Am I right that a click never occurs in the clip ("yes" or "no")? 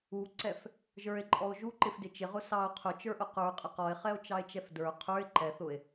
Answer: no